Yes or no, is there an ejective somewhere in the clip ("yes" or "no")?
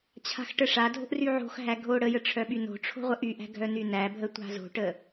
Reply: no